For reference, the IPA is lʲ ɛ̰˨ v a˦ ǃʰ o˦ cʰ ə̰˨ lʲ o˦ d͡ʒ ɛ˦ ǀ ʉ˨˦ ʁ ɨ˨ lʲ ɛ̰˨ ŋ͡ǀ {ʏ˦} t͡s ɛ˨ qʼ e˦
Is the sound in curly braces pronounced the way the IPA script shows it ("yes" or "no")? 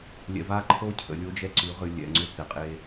yes